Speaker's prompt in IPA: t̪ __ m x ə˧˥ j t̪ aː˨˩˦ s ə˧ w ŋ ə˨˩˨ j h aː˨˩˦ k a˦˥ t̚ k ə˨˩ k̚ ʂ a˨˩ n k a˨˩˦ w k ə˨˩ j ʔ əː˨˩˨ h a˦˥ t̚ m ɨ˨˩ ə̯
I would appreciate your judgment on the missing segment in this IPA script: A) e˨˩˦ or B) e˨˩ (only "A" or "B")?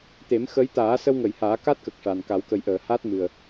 A